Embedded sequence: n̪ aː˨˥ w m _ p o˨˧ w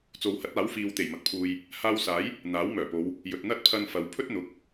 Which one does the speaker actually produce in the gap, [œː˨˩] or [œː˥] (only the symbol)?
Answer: œː˨˩